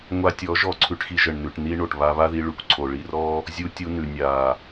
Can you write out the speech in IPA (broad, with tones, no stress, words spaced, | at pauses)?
ŋʷa˧tʲɔ˨˦ ʒɔ˧ǀʰʉ˧ʈxi˧ʒə˨ɳ nʉ˨ʈni˧ ɳo˨ʈβa˧βa˦ði˧ ɭʉ˨kʷǀʰo˨ ɭi˧rɔ˦ | zʲu˧ tʲu˧nʉ˨ nʲa˨